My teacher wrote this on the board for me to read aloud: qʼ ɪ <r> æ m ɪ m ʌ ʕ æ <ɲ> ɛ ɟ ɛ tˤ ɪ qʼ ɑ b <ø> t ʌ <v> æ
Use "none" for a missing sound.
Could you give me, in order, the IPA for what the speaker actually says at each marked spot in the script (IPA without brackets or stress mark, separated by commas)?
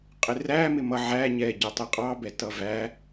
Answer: r, ɲ, ɛ, v